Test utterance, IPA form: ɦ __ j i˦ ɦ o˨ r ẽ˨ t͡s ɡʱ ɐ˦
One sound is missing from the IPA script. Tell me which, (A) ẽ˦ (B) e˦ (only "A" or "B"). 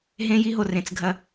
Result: A